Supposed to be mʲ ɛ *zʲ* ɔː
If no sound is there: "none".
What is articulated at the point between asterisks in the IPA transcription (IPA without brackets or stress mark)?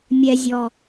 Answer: zʲ